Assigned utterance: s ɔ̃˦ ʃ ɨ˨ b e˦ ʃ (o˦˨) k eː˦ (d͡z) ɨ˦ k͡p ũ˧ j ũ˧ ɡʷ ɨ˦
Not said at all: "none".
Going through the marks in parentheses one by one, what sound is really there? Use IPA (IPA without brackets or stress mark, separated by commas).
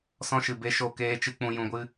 o˦˨, t͡ʃ